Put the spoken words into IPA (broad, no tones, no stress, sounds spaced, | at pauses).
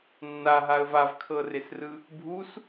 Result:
nː a ɦ a ə̯ v a v kʰ ɤ r e s r ɯ | bʱ u s